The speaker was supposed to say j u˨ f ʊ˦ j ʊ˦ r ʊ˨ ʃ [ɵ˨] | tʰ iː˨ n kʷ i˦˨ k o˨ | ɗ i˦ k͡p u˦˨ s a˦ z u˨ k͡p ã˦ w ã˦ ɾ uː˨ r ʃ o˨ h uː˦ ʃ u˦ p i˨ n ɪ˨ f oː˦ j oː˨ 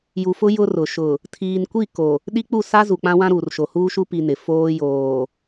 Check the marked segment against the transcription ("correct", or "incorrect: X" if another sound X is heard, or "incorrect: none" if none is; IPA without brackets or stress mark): incorrect: ʊ˨